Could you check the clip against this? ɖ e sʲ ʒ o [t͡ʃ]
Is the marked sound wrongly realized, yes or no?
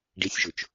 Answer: no